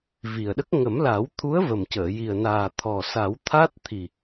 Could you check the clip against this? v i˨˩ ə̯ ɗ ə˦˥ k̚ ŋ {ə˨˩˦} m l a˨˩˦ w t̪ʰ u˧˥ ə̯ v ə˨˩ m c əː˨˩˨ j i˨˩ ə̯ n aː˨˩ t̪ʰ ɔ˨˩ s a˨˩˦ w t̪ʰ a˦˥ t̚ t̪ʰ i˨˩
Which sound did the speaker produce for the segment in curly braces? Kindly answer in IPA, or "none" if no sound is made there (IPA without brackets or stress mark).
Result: ə˨˩˦